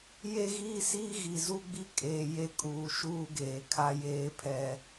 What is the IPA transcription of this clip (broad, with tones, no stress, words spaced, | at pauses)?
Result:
je˦ɣiː˦siː˦ ɣi˨zu˦ɡ͡bi˦ kʼeː˨je˦ kʼuː˨ʃuː˦ɡeː˨ kʰa˦jeː˦pʰɛ˦